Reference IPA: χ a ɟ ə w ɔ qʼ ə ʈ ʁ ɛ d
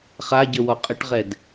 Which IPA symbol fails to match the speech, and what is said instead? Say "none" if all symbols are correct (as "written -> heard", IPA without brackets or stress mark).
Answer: none